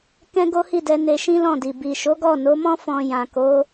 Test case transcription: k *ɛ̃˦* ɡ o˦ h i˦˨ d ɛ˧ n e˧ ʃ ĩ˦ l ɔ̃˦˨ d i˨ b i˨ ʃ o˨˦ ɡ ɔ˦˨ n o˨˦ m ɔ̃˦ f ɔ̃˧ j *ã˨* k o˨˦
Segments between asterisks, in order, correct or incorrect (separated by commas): correct, correct